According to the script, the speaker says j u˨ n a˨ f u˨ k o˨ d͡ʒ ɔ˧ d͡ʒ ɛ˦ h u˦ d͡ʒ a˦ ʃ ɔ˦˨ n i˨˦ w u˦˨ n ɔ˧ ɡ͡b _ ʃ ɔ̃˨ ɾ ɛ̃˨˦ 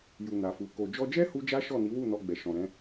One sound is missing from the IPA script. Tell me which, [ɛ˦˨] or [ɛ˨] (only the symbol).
ɛ˨